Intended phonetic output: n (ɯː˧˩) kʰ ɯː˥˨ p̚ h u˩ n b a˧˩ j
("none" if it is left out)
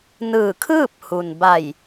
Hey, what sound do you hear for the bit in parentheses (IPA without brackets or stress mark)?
ɯː˧˩